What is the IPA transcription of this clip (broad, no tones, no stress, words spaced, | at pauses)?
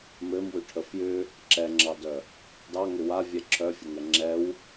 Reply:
mɘmwʏʈʰə fjʏ | ǁɛŋ͡ǁɑdœ | dɑŋʏ wavʲɛ ǁʰœfʲəŋɛ ŋ͡ǁɛw